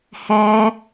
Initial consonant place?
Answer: glottal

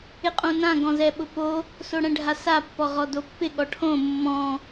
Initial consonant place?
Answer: uvular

